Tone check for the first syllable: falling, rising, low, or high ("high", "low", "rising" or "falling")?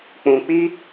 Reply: low